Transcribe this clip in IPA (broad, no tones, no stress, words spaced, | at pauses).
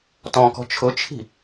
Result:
tɔ̃kɔ̤ t͡ʃʰʊt͡ʃʰi̤